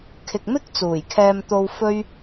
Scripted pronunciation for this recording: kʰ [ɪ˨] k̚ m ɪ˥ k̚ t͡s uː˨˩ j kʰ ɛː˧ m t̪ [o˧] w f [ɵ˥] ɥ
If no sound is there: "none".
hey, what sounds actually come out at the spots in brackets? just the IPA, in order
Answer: ɪ˨, o˧, ɵ˥

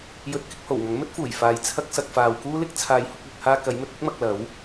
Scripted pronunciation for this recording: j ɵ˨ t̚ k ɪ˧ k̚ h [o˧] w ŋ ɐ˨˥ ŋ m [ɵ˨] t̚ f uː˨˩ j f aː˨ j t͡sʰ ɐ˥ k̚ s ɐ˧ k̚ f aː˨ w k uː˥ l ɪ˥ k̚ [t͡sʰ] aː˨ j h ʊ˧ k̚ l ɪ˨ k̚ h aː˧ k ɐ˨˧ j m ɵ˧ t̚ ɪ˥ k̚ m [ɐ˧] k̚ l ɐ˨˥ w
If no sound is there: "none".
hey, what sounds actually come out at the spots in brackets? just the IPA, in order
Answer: o˨˩, ɵ˥, t͡sʰ, ɐ˧

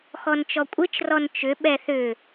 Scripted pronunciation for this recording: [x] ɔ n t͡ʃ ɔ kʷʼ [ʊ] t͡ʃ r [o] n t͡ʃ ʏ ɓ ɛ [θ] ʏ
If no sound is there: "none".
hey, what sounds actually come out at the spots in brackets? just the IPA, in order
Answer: x, ɯ, ɔ, θ

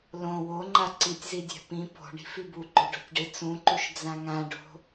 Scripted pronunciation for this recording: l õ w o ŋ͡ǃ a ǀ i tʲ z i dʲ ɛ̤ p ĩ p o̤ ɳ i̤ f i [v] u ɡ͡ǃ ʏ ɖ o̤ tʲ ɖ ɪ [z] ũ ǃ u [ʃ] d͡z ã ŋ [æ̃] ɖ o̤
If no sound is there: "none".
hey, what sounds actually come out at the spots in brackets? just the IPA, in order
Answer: b, t͡s, ʃ, ã

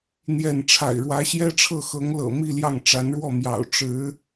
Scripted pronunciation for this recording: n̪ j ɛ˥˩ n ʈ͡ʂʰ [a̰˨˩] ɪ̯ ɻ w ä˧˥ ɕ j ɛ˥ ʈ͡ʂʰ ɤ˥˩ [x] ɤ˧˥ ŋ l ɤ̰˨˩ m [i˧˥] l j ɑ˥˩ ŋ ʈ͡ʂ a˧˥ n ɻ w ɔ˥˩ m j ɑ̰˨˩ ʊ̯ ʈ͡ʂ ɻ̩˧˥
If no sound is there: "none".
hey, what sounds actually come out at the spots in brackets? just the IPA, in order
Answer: a̰˨˩, x, i˥˧

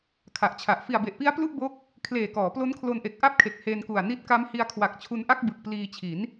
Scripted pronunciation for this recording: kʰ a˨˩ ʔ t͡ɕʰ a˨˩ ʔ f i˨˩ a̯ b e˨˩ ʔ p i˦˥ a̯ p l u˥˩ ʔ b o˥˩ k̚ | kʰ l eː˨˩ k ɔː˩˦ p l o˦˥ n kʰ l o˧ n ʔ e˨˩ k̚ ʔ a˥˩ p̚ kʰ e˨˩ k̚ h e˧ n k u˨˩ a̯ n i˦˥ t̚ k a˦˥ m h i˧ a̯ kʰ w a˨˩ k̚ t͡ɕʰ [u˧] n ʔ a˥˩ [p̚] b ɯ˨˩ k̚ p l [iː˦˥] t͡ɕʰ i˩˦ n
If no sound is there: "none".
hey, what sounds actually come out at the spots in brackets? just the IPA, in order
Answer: u˧, k̚, iː˧

